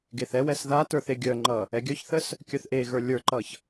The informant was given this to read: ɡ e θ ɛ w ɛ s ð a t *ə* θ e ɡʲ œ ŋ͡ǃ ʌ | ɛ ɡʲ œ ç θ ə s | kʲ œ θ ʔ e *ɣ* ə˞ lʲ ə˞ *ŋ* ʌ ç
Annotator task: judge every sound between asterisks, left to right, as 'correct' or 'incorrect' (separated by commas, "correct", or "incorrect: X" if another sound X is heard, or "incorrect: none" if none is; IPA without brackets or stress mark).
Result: incorrect: ə˞, correct, incorrect: ǃ